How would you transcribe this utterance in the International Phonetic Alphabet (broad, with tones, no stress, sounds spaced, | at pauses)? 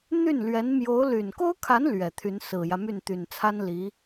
n̪ y˥˩ n l ɥ ɛ˧˥ n m j o˧˥ ʊ̯ l y˨˩ n k o˥ ʊ̯ kʰ a˧˥ n l ɥ ɛ˨˩ t̪ʰ y˧˥ n s ɹ̩˨˩ j ä˦ m y˥˩ n t̪ y˨˩ n t͡sʰ a˥ n l i˧˥